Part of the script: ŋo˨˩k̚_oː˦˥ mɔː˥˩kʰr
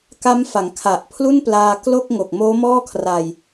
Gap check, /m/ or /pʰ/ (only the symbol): m